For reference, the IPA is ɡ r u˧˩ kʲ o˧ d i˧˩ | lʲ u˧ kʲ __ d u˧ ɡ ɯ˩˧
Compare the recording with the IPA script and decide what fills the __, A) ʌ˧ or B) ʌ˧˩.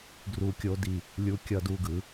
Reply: A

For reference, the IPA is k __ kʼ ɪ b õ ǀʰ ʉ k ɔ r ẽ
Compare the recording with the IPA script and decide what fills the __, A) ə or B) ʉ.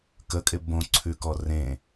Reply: A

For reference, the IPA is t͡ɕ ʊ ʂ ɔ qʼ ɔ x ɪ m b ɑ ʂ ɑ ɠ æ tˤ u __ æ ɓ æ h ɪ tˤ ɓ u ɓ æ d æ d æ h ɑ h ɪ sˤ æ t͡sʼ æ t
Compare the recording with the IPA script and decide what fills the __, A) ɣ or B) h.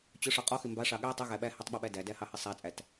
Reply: A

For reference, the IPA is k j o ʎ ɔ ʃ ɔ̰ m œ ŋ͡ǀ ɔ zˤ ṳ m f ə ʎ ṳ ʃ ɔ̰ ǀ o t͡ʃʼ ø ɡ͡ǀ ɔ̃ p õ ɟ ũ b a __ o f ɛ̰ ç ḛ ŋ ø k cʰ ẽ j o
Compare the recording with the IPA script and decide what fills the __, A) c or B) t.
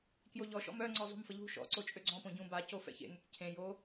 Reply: A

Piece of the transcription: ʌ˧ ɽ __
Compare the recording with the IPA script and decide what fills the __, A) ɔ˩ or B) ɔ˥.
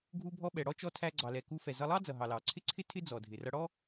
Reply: B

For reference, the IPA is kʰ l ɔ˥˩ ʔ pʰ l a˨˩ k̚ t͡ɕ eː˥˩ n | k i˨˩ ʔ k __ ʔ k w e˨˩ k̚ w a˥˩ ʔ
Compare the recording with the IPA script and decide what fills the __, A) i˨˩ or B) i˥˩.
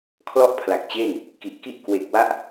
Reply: B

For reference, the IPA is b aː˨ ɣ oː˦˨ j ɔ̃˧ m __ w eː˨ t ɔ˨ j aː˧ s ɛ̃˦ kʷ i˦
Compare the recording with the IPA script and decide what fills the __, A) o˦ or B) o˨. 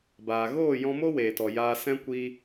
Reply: A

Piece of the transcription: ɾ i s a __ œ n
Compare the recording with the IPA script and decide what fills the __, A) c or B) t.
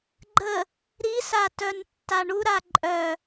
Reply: B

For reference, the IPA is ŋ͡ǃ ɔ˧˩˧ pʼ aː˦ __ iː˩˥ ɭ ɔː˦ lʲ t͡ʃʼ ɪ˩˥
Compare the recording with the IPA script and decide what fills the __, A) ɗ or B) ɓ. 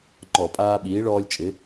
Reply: B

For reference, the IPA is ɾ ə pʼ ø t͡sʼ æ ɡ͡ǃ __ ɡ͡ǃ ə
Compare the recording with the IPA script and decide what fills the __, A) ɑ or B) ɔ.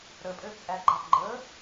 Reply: A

